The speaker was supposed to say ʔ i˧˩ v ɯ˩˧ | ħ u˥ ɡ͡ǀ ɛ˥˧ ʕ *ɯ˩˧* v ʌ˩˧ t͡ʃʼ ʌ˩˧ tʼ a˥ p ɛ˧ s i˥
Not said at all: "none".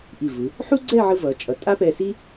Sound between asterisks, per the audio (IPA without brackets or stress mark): ɯ˧